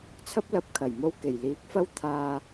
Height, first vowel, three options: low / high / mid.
low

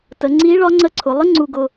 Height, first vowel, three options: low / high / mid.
mid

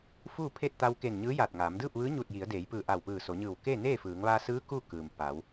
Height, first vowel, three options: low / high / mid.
high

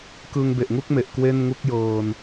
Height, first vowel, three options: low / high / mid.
high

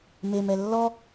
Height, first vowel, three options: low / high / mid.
mid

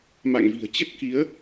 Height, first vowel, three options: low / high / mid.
low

